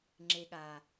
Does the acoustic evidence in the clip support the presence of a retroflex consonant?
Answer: no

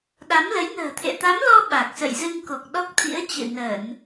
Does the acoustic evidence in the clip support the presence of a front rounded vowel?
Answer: no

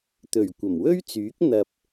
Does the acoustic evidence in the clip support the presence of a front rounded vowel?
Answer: yes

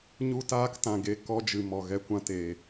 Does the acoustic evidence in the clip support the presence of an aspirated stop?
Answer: no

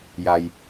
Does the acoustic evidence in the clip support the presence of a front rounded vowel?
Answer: no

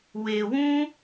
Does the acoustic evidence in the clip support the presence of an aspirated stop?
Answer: no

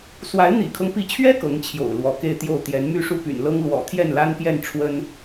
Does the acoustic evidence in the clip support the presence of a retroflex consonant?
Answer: yes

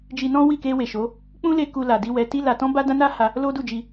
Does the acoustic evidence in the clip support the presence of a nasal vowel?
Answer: yes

